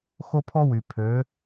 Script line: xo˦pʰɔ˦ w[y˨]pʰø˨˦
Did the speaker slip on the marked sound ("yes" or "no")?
no